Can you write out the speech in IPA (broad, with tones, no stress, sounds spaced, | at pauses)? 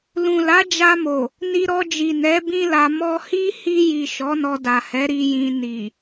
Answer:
l ũ˨ l a˨˦ d͡ʒ a˧ m o˨ | n i˧ ɾ ɔ˧ d͡ʒ i˨ n ɛ˨˦ b ĩ˦ l a˧ m ɔ˧ h i˦ h i˧ j i˨ ʃ ɔ˨˦ n ɔ˧ d a˨ h ɛ˨˦ ɾ i˧ j ĩ˧ n i˨